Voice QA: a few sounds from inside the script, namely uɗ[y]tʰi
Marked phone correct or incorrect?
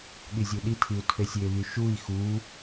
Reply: incorrect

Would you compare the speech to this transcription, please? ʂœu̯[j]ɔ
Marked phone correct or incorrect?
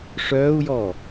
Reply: correct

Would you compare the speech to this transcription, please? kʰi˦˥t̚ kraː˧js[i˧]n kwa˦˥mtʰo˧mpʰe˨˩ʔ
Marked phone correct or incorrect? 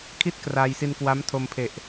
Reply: correct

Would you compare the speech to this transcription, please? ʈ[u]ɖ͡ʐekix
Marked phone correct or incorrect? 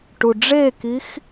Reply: correct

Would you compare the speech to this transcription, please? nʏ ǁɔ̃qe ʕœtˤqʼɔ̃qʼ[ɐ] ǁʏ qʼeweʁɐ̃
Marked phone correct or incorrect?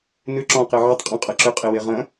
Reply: correct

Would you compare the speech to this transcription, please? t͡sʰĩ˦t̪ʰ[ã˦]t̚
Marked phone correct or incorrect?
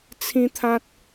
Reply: correct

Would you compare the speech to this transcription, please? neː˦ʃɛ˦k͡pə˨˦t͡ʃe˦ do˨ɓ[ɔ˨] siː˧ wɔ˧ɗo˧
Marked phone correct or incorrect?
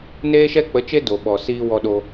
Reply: correct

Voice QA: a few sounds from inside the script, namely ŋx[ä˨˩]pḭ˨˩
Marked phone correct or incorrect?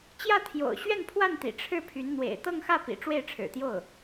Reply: incorrect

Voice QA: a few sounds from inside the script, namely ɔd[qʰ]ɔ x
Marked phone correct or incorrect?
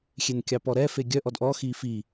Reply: incorrect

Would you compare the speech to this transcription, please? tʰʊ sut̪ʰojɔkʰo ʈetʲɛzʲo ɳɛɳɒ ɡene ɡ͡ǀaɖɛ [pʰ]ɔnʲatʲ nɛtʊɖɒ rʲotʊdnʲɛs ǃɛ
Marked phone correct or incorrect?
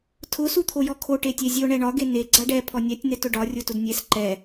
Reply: correct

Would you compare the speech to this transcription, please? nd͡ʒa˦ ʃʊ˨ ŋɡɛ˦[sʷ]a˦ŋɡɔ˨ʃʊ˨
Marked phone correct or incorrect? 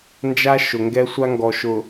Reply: correct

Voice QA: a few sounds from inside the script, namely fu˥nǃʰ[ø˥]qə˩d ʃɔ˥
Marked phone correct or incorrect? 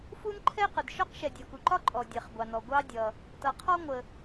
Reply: incorrect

